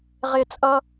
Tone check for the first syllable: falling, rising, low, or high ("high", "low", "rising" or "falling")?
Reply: high